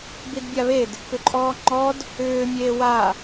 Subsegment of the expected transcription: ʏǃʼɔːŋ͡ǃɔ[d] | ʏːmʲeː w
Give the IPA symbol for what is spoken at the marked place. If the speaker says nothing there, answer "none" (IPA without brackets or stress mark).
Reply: d